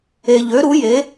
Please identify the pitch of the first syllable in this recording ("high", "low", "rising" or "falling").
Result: low